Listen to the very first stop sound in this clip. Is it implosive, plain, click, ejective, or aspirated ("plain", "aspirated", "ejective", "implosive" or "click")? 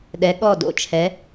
implosive